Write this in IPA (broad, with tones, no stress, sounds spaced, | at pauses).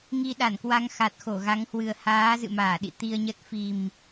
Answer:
ŋ i˧ ɗ a˧˩ n k w a˧ ŋ x a˨˩ t̚ x o˧˩ ɣ a˨˦ ŋ h w ɨ˨˩ ə̯ h aː˨˦ z ɨ̰˧˨ m aː˧˩ ɗ ḭ˧˨ t̪ i˧ ə̯ ɲ ə˦˥ t̚ f i˨˩ m